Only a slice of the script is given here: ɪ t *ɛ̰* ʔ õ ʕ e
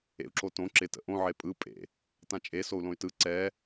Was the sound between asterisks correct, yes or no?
no